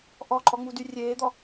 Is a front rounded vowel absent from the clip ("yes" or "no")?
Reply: no